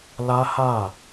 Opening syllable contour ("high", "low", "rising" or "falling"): high